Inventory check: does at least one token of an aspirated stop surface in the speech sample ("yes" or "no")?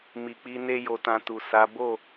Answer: no